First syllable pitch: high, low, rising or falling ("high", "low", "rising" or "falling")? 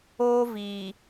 high